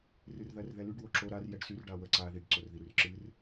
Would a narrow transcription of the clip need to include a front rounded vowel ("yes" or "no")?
yes